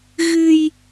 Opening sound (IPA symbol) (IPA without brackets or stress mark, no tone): ɣ